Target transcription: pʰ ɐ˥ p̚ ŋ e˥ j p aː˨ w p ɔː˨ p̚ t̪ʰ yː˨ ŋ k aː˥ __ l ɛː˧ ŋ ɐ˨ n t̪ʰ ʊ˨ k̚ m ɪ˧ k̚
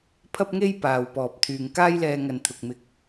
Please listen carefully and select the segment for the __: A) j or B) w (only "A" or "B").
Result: A